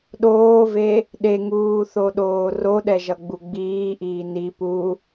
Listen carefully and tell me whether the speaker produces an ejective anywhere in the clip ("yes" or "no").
no